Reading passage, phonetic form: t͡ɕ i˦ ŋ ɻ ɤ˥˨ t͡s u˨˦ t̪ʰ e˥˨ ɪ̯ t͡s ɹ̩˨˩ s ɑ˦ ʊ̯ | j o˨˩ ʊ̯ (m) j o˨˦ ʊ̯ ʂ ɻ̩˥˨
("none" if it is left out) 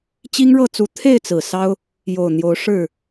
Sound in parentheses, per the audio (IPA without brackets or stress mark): n̪